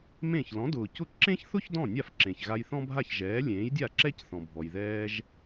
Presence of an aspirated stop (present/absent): absent